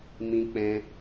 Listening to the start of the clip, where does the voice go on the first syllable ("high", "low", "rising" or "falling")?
high